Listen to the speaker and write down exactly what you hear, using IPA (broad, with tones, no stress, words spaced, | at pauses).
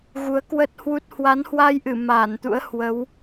ɣu˨˦ə̯kwə˦˥t̚hwu˦˥t̚ hwa˨˦nhwa˧jʔɨ˧˩ maː˧˩nt̪ṵ˧˥ə̯ hwə˨˦w